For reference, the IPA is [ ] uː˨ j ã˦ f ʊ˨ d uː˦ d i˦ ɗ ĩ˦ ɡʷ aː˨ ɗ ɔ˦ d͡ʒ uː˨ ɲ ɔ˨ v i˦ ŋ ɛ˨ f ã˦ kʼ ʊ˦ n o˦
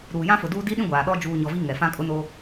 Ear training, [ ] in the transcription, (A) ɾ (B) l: A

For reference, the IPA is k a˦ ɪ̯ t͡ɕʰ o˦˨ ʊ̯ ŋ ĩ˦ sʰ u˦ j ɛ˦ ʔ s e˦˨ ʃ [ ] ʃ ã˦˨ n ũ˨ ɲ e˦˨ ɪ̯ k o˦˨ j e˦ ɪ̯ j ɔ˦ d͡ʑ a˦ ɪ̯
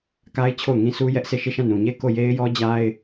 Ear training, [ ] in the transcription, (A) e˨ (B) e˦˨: B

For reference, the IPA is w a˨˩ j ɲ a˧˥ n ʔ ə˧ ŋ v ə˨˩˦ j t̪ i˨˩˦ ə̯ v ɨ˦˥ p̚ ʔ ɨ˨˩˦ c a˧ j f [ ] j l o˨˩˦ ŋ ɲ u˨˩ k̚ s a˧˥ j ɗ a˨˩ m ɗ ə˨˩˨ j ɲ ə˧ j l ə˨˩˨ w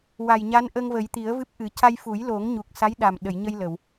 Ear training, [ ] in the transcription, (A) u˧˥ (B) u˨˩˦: B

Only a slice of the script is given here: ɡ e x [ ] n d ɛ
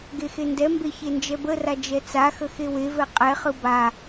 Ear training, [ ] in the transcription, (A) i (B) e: B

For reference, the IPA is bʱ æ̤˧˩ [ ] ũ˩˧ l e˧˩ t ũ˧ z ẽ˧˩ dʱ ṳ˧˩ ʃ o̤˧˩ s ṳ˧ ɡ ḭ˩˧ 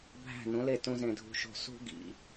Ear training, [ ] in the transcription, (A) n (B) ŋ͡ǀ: A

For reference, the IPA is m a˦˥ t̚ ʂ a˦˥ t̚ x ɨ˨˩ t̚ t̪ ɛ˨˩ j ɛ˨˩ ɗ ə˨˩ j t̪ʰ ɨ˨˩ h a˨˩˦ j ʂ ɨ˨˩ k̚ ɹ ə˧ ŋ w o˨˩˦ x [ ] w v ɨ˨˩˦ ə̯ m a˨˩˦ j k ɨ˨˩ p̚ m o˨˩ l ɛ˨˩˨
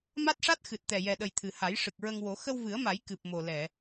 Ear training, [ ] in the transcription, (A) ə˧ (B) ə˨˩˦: A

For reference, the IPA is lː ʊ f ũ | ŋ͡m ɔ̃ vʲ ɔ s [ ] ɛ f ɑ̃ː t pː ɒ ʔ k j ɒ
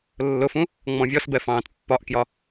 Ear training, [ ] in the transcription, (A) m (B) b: B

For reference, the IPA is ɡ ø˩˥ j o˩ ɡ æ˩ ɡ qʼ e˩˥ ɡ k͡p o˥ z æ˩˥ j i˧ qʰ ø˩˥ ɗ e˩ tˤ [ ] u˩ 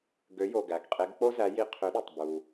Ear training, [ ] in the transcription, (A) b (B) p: A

